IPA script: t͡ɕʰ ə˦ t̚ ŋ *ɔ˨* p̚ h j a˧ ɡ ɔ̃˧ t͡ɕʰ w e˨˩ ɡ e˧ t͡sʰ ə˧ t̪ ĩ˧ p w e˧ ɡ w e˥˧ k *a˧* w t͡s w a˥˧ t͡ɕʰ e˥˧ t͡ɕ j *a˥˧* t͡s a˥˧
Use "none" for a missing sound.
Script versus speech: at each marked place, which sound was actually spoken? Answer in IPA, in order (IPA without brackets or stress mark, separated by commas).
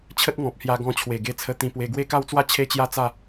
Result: ɔ̃˨, a˥˧, a˥˧